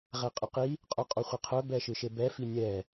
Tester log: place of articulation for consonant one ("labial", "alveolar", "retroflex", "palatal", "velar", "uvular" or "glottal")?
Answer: uvular